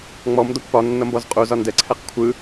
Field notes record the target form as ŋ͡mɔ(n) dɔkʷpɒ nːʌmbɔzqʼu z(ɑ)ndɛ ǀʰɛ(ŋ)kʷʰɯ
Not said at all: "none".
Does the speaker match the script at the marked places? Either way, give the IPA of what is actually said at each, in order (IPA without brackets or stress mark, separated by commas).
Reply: m, ɒ, q